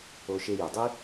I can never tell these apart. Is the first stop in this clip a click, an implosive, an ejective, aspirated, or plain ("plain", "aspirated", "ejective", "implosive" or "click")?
plain